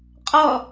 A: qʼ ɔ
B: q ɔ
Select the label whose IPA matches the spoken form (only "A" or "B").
A